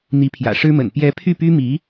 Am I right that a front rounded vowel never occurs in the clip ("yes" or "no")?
no